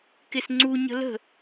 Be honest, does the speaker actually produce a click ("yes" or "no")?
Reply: yes